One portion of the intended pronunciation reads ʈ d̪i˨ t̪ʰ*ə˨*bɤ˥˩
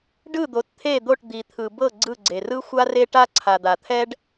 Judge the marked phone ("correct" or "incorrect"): incorrect